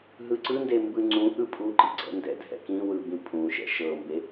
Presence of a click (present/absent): present